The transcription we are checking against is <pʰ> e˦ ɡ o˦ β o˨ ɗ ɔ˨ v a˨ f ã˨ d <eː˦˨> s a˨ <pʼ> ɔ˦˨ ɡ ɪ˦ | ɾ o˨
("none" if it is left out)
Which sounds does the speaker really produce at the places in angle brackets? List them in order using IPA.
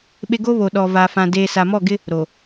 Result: ɓ, eː˨, m

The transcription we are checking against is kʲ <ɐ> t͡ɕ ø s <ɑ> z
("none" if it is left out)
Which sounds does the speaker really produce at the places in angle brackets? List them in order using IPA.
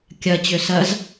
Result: ɐ, ɐ

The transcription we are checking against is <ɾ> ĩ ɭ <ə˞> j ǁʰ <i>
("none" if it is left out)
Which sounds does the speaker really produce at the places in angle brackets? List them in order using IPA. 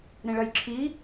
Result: ɾ, ɐ, i

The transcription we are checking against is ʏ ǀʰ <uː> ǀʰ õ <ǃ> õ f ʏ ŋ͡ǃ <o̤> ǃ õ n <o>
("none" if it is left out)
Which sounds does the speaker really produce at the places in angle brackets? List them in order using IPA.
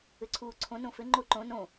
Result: uː, n, o, õ

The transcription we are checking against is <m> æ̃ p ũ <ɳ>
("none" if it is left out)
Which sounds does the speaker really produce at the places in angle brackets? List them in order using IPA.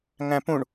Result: ŋ, ɳ

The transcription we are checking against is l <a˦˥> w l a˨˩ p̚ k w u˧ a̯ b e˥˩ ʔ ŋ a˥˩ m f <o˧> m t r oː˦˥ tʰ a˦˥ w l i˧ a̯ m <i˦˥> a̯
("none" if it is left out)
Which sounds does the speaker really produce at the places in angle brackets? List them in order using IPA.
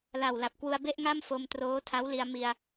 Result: a˨˩, o˧, i˧

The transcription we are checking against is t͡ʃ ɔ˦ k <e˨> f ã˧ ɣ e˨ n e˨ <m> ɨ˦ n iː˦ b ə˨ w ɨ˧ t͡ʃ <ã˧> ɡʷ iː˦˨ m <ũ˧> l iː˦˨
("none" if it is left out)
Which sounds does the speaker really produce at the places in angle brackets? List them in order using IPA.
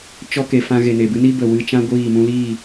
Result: e˨, b, ã˦, ũ˧

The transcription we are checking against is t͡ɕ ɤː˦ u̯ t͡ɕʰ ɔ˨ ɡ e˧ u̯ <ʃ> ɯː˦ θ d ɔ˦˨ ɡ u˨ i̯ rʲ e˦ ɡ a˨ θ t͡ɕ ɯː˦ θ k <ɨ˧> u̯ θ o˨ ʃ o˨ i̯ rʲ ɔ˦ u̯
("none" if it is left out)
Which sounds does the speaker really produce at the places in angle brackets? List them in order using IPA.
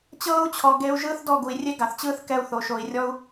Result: ʒ, ɛ˧

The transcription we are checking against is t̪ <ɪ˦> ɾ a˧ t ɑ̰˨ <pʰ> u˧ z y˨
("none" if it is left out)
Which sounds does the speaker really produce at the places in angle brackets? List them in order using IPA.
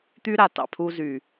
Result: y˦, pʰ

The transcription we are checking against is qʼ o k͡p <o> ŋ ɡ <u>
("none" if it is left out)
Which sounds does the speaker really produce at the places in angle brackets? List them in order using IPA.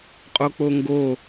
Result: o, o

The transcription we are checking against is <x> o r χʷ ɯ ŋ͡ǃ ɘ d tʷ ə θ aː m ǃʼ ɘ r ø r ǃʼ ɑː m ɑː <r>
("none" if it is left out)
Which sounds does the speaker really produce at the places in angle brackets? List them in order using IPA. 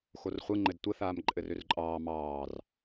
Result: x, r

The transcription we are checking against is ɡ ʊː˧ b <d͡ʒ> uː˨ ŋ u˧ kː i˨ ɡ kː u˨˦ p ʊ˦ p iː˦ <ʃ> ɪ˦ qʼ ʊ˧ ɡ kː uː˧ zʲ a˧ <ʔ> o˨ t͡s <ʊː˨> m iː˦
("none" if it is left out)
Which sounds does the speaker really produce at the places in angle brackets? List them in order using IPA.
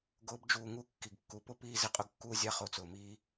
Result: d͡ʒ, z, χ, ʊː˨

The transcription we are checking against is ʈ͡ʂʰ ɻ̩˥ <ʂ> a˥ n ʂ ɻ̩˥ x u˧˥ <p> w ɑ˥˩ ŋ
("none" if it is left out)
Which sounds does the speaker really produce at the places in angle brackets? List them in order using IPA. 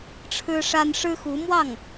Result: ʂ, m

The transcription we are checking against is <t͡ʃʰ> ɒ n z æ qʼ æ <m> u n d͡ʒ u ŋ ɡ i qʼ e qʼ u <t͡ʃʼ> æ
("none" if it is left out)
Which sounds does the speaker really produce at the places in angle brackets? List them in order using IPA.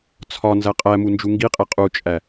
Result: t͡sʰ, m, t͡ʃʼ

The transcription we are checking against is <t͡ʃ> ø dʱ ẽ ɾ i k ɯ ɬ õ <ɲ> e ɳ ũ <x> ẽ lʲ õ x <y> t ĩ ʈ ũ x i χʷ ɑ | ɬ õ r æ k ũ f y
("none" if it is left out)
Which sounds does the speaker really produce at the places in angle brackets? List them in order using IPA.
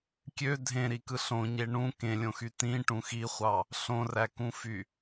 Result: kʲ, ɲ, k, y

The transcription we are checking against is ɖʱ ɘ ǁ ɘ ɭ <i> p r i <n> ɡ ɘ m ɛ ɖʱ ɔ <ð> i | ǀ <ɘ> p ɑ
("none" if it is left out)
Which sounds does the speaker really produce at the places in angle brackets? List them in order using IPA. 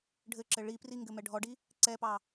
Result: i, ŋ, ɖ, ɛ

